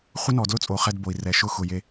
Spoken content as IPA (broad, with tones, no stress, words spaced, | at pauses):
χʷɪ˦nɔ˨dlʊ˦t͡sʼo˨ χɛ˦dbo˨i̯ rɛ˨ʃʊ˦xʊ˨je˦